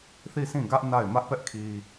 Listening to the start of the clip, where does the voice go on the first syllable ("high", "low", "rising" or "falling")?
falling